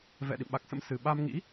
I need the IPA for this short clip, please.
v ɛ̰˧˨ ɗ ḭ˧˨ m ɓ a˨˩ k̚ s ə̰˧˥ m s ɨ˧ ɓ a˧ m ŋ ḭ˧˥

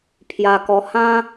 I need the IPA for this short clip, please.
pʰ j a˧ k ɔ˧ h ã˦

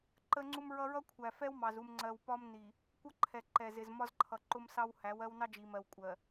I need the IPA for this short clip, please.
ǃ ə˦ ŋ͡ǀ u˦ m ɹ ʌ˦ ɹ ʌ˦ kʷʰ æ˨ f ɛ˦ w m ɑ˨ z u˨ m ŋ͡ǀ ɜ˨ w p ɒ˦ m n i˨ | kʷ ʌ˦ ǃʰ ɛ˨ ǃ ɛ˨ z ɪ˨ z m ɒ˦ z ǃʰ ʌ˨ ǃ ʊ˦ m s ɑ˦ w h æ˨˦ w ɜ˦ w n ɑ˦ d͡ʒ i˨ m ɜ˨ w kʷʼ ɜ˨

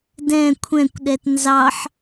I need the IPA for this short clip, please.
d ɛ̃ kʷʰ ɛ̃ kʷ ɗ ɛ t n z ɑ ħ

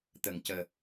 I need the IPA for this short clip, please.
t̪ ə˨˩ ŋ c əː˨˩

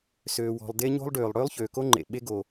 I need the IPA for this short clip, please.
s øː˩ w ɔ̤˩ lˠ d e˥ ɲ o̤˥ lˠ ɖ øː˩ lˠ ɽ øː˥ lˠ ç øː˩ k o˥ ŋ͡ǃ ḛ˩ ɓ e˥ ɡ o˩

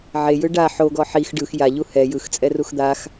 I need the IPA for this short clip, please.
ʕ e j ɯ ɖ a ħ o ɡ ɔ ħ i x ɖ ɯ x j a ʎ u h ɛ j ɯ x t͡sʼ ɛ r u x d̪ a x

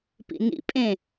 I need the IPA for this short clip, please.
p ḭ n ḭ pʼ ẽ

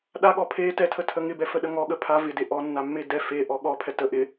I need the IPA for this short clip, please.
ɗ a ɠ ɔ pʰ e t ɛ tʰ ə tʰ ə ŋ ɪ b ɛ f ə ɗ ə ŋ ɔ ɠ ə pʰ a v ɪ d e ʔ ɔ nː a mː e d ɛ f e ʔ ɔ ɠ ɔ pʰ ɛ t ə ʔ ɪ

